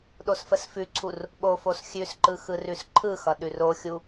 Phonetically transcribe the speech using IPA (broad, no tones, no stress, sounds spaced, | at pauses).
ɗ o s f ə s f ʉ ǀʰ u r | ɓ o f o s xʲ ʉ s ǃ ɯ x ɯ r ʉ s ǃʰ ɯ x ʌ ɗ ʉ r o xʲ u